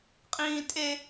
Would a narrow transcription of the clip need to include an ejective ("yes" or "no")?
yes